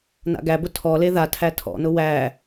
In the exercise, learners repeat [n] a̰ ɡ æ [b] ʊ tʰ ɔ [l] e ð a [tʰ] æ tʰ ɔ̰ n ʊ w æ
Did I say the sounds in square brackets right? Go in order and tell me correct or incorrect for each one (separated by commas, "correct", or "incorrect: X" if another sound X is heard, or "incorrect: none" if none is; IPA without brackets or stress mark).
correct, correct, correct, correct